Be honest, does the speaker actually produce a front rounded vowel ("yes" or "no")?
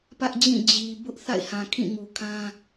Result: no